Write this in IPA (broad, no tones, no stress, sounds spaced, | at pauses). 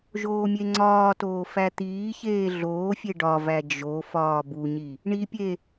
ʒ oː mʲ e ŋ͡ǀ ɒː t oː f æ t̪ iː ç eː ɮ oː fʲ e ɖ ɒ v æ d͡ʒ o f ɒː b u ɲ i | ɳ i pʲ e